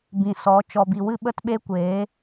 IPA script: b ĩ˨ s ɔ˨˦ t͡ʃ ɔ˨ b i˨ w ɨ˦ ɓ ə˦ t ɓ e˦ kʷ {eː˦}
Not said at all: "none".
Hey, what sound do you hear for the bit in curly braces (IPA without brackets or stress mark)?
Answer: eː˨˦